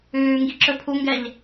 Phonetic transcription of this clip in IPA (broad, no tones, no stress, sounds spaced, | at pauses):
ʉː ŋ ɡ i ǁ ɵ pʰ u ŋ ɡ ɛ ʎ